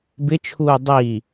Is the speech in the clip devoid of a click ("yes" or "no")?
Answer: yes